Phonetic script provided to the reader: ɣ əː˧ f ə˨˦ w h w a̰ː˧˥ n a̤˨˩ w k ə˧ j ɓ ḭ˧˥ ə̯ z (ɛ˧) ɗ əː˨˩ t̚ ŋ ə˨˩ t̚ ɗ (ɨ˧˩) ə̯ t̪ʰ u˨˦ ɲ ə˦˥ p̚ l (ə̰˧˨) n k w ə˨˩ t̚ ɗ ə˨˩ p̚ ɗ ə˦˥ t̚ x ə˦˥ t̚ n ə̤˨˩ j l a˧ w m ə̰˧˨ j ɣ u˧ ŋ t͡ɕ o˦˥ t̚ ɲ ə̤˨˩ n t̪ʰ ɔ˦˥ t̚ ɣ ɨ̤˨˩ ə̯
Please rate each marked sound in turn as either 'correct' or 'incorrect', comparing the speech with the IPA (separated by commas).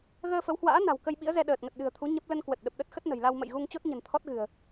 correct, incorrect, incorrect